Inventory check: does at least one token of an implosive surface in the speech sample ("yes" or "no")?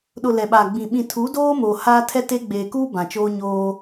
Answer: yes